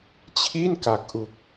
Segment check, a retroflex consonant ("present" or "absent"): absent